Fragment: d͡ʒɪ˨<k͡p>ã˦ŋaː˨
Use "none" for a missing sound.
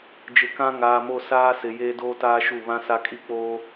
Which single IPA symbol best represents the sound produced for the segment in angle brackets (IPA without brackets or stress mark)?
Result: k